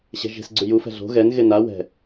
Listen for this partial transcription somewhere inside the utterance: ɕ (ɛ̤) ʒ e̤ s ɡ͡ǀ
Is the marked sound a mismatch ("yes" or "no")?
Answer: no